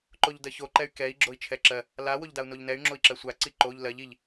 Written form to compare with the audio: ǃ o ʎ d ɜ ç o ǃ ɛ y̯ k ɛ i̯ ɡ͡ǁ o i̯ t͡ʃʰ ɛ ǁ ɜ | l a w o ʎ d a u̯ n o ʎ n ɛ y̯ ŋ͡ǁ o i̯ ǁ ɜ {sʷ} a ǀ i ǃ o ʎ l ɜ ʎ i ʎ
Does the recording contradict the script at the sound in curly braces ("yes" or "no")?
no